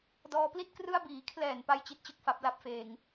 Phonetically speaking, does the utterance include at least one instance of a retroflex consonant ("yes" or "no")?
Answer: no